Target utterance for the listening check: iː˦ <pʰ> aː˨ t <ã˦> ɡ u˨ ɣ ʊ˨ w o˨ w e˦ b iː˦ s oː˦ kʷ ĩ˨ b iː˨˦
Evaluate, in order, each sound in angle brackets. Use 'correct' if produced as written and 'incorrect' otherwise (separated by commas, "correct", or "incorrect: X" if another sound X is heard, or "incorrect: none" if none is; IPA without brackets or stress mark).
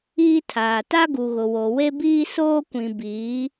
incorrect: tʰ, incorrect: a˦